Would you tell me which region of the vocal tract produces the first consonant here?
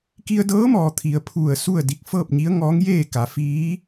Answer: velum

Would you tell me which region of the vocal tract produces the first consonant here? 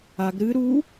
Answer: velum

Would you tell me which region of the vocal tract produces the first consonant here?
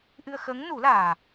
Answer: throat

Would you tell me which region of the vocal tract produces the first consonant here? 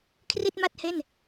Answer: velum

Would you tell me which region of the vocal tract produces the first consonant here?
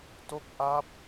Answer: tongue tip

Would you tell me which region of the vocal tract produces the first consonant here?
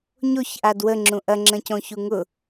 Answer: palate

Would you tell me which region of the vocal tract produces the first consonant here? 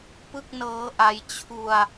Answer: lips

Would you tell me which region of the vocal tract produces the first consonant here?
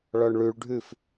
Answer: retroflex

